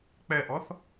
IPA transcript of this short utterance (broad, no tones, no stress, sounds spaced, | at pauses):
k͡p ɛ ʔ ɔ θ